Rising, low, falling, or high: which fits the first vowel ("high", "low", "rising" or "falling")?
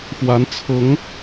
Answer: rising